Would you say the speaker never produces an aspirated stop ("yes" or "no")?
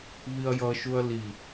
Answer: yes